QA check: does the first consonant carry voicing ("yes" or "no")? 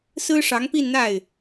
no